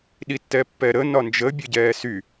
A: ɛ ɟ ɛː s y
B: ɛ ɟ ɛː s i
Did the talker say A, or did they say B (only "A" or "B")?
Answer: A